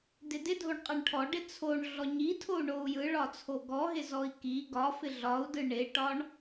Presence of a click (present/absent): absent